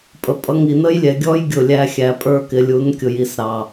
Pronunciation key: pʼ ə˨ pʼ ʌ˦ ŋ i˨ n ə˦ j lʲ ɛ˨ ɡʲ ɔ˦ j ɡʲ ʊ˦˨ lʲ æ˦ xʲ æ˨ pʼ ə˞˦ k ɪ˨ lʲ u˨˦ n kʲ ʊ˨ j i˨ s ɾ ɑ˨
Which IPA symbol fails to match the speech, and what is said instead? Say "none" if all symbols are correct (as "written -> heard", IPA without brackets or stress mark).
none